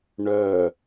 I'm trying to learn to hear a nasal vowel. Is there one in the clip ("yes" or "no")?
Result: no